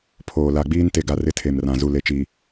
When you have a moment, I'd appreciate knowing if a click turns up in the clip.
no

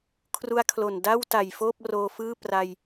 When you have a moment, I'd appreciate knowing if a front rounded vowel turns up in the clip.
no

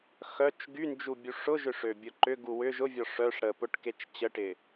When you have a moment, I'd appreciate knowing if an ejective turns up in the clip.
no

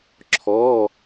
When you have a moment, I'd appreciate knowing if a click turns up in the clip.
yes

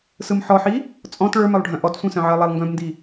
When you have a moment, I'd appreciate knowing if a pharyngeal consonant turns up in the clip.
yes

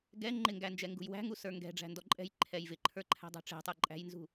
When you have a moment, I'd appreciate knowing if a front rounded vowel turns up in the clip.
no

